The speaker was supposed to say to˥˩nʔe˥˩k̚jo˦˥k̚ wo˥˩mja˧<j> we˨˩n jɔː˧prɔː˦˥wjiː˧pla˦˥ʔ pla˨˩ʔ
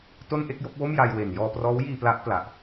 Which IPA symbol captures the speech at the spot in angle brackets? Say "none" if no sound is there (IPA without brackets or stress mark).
j